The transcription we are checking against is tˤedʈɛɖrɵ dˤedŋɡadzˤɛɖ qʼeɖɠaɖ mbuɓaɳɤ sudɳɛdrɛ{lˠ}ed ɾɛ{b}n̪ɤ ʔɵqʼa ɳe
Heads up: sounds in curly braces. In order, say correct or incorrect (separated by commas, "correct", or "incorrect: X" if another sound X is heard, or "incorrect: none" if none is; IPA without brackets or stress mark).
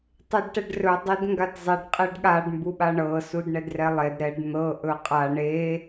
correct, incorrect: ɖ